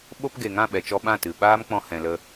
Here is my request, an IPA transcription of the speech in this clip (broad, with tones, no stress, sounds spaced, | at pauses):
ɓ o˧ p ɡ e˨ ŋ ã˦˨ ɓ ɛ˨ t͡ʃ ɔ˧ ɓ ã˦˨ t ɨ˨ ɓ aː˦ m k͡p ɔ̃˧ h ɛ̃˨ l ə˧